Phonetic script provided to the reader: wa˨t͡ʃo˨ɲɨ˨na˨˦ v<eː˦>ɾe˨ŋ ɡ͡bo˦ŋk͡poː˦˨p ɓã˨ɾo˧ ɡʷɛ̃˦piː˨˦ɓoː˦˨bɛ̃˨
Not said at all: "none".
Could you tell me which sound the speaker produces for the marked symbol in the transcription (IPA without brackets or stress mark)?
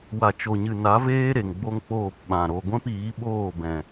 eː˦